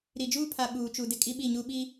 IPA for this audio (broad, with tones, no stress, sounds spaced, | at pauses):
ɾ i˨ d͡ʒ uː˦ pʰ a˨ ɓ uː˨ t͡ʃ u˨ d ɪ˦ kʼ i˦ ɓ i˦˨ ɲ u˦ ɓ i˦